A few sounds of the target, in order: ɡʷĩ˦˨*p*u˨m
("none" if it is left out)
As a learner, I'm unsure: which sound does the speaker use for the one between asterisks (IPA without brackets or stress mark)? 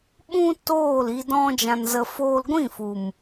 f